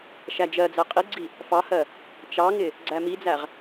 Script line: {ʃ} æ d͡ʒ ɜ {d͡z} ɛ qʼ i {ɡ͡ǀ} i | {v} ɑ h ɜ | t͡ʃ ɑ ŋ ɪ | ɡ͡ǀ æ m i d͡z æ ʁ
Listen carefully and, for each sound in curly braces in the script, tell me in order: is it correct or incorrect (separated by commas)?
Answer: correct, correct, correct, incorrect